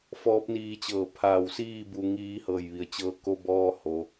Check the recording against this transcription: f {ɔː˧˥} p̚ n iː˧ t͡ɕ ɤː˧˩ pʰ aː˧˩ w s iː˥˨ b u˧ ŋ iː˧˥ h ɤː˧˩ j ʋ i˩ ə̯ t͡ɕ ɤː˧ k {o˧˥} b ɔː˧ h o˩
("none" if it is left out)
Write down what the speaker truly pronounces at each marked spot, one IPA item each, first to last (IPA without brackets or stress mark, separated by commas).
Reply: ɔː˧˥, o˧